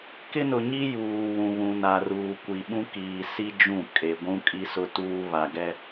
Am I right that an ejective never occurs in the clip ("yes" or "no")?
no